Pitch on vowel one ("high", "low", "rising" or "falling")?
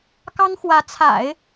high